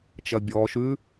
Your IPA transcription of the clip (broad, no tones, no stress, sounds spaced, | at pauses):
t͡ʃ ɐ bʲ ɔː ʃ ʉ